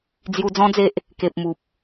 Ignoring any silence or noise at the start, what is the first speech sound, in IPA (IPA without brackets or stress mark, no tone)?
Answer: d͡z